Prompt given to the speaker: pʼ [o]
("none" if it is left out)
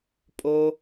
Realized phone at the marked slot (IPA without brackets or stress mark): o